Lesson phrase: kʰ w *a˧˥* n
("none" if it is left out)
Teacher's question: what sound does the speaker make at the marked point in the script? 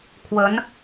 ə˧˥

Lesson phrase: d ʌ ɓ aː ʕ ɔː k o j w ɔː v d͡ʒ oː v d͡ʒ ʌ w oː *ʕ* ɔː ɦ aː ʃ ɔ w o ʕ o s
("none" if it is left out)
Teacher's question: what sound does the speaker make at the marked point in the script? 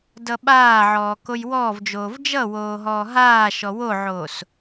ɦ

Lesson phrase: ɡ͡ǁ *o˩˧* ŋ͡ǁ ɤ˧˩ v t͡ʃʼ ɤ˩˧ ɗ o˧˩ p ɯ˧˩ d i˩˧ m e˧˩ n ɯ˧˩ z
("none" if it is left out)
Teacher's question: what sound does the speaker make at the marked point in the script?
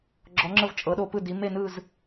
ɔ˩˧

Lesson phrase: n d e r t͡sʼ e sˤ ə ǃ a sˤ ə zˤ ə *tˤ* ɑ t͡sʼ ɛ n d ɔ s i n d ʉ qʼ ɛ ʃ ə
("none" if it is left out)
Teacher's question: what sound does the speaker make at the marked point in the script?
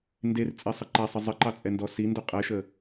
ǃ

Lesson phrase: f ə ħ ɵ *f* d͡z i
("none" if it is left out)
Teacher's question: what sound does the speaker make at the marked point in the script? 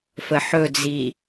none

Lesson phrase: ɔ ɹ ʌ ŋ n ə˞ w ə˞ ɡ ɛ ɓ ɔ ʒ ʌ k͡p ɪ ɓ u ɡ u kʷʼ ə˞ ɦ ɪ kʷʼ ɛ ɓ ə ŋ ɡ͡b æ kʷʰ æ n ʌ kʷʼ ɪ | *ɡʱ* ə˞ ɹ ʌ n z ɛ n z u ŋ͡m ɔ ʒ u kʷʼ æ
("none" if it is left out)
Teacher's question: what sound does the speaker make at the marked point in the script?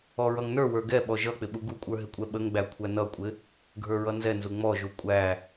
ɡʱ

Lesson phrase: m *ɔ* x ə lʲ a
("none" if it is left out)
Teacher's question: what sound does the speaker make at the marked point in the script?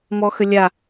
ɔ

